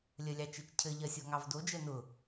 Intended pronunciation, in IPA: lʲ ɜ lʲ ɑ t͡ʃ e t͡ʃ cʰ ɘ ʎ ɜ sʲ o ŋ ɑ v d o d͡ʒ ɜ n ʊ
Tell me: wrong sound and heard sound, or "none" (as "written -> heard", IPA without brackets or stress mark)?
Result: none